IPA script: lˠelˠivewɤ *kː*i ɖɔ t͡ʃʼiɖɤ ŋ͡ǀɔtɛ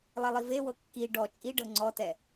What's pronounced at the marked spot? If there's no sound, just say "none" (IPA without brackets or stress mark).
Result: kː